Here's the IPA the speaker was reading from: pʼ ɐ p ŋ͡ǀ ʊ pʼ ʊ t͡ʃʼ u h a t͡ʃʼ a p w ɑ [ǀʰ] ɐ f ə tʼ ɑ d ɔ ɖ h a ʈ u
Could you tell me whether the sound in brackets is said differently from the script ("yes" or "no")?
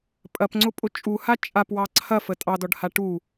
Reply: no